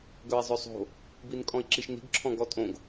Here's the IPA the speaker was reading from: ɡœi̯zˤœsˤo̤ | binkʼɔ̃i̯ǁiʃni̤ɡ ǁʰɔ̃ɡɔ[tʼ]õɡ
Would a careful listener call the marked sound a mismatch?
no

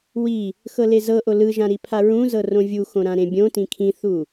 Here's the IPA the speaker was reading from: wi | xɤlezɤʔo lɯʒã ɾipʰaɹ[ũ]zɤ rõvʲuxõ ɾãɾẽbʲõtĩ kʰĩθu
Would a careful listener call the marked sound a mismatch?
no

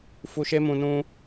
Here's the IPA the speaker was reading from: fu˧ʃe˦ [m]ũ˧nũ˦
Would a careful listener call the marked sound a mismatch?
no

